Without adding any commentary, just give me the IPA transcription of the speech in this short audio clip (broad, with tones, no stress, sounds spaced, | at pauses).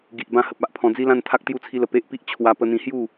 ɡ i˨ ʔ b ã˧ h ə˨ p̚ a˦ ʔ pʰ ɔ̃˧ d͡z i˦ l ã˥˧ n t̪ʰ a˦ k̚ t̪ j u˥˧ t͡sʰ i˦ l ə˧ p e˦ ʔ p i˦ ʔ t͡ɕʰ w a˦ p ə˧ n̪ ĩ˧ h j u˥˧